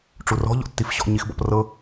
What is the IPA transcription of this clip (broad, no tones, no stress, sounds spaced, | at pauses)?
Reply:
ʈ͡ʂ u r ɔ̤ ʎ ɔ̰ tː i f ɕ ɔ̰ ɲ i x b ɔ̰ p r ɤ